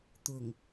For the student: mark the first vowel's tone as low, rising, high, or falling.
low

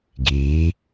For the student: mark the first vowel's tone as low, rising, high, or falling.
rising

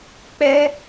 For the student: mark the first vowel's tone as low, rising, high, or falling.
high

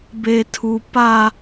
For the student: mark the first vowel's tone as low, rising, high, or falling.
high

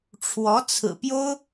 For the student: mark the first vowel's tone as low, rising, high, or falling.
rising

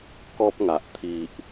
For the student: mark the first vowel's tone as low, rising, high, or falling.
high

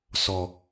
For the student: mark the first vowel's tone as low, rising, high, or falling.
low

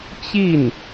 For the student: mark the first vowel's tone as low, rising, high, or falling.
falling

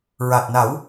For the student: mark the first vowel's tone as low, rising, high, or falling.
low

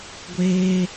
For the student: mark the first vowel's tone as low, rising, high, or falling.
high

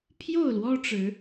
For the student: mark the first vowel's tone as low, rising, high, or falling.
falling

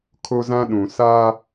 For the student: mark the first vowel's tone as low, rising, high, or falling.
high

